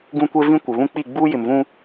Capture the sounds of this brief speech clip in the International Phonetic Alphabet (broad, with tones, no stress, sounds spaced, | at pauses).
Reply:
ɡ ũ˦ kʷ e˦ v ĩ˦ kʷ ɪ˨ β ũ˦ k͡p i˦˨ ɡ͡b uː˦ j ɪ˨ m v ũ˦